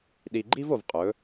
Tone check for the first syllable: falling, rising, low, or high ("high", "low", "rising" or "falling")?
low